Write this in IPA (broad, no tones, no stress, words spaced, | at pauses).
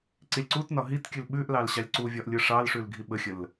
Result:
ǀilʲǀutnɒ ɦitkʲʉl ɓʉʔ lɑlɕɑlʲǀuvʲɒʔ lʲɯʂɑlʂʉl ɡʱiɓəxʲəl